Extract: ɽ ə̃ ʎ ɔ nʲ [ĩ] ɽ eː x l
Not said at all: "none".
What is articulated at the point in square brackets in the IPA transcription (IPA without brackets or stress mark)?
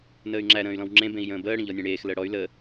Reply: ẽ